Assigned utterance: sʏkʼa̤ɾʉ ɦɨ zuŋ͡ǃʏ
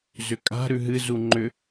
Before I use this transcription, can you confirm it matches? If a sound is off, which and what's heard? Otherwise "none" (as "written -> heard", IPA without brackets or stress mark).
s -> z